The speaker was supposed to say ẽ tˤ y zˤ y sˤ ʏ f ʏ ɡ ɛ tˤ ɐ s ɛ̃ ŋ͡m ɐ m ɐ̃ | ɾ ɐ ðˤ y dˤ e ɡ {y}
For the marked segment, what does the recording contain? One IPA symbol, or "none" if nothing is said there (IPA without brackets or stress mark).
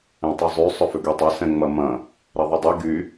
y